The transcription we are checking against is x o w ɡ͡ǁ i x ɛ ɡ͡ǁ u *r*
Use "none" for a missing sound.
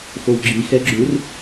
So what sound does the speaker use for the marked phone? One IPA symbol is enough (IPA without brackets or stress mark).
r